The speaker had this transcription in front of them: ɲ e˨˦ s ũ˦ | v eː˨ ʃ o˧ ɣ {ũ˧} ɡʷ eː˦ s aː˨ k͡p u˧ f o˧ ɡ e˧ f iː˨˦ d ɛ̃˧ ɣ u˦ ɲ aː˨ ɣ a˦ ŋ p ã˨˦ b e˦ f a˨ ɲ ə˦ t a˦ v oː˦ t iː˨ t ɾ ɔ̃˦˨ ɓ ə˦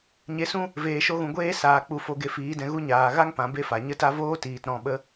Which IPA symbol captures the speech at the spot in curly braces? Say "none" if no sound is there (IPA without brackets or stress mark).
ũ˨